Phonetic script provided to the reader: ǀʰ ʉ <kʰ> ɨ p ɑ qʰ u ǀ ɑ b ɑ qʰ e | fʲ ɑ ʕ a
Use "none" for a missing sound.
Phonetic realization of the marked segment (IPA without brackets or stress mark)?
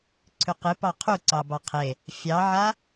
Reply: q